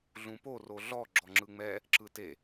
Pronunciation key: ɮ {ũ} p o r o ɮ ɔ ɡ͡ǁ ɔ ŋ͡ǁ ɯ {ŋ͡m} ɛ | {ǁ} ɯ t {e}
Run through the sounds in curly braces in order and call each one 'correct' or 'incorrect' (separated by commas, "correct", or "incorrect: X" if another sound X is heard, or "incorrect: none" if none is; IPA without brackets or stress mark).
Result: correct, correct, correct, correct